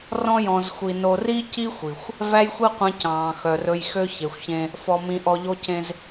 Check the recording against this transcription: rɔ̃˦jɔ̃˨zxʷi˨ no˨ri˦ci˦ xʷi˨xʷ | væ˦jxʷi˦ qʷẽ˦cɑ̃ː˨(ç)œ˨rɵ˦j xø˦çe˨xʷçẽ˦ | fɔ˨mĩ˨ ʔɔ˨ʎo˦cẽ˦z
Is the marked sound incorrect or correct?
incorrect